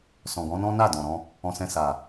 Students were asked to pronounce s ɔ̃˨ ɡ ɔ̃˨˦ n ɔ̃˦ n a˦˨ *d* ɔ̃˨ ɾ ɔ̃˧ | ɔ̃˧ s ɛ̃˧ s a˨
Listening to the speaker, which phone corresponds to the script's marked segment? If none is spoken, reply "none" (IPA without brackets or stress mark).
d